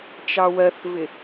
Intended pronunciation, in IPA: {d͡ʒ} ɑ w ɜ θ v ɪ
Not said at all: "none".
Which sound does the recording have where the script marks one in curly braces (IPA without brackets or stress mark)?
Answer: t͡ʃ